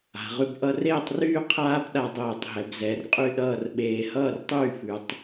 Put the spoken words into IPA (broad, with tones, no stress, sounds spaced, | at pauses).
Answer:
a̤˩˧ ʁ ʉ˧ b ʔ ʌ˧ r eː˥˧ tˤ r yː˥˧ qʰ aː˥ b ɗ a˧ dˤ eː˧˩ tˤ ɦ ɛ˩˧ b z ɛ˩˧ r qʼ y˥˧ ɗ ʌː˥˧ r ɓ eː˧ h ʌː˥˧ r tˤ yː˥˧ f ʉ˩˧ tˤ